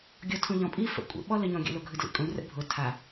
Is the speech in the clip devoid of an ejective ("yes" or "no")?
no